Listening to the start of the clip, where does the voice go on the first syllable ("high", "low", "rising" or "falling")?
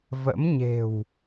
rising